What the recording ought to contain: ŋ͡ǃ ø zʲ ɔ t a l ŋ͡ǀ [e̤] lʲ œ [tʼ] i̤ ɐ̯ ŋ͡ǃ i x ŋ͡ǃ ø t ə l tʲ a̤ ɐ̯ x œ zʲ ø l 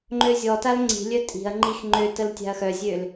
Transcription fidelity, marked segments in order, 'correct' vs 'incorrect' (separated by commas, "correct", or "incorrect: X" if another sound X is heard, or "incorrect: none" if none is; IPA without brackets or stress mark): incorrect: i̤, correct